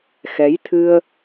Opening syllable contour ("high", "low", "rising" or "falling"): rising